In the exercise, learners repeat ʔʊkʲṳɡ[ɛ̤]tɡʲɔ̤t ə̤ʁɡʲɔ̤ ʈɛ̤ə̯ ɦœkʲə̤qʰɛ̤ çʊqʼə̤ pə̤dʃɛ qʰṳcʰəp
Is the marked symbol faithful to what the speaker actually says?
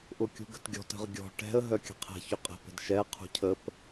no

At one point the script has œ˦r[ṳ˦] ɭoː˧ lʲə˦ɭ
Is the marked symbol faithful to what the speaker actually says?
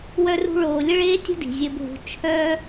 yes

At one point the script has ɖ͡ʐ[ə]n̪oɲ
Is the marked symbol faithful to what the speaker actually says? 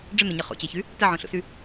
yes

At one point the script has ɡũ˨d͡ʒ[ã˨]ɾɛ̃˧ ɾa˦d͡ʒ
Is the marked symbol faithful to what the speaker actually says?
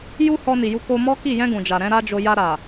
no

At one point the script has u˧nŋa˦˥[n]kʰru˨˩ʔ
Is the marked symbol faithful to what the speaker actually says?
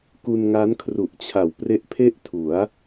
yes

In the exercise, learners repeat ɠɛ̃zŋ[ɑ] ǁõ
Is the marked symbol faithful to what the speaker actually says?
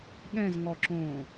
no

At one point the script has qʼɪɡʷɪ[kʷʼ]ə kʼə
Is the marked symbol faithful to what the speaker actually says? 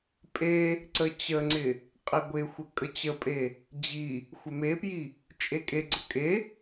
no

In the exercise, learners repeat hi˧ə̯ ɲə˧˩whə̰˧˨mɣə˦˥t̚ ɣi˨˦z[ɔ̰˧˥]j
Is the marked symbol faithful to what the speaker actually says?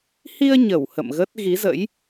no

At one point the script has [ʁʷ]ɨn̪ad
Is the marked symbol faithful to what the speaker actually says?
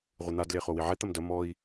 yes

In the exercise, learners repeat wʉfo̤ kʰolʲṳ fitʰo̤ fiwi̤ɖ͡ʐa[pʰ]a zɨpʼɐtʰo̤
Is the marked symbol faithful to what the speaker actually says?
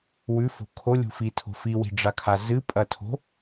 no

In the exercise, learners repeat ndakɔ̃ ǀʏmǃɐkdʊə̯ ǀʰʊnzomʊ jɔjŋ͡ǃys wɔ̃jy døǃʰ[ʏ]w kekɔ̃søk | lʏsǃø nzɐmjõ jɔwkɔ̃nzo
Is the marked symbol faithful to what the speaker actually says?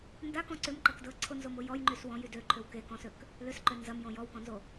yes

